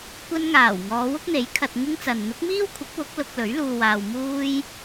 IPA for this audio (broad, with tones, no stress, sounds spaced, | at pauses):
kʷ ɐ˧ n ŋ aː˨˩ w ŋ ɔː˨˧ w ʊ˥ k̚ n̪ e˨˥ j kʰ ɐ˨ t̚ ŋ ɪ˥ ŋ t͡s ɐ˨ n n̪ ʊ˨˥ k̚ m iː˥ w kʷʰ ɪ˨˥ k̚ w ʊ˨˥ k̚ l ʊ˧ k̚ l ɵ˨˥ ɥ l uː˨ w aː˨ w m uː˥ j